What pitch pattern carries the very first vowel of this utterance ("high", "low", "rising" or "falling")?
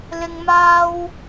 low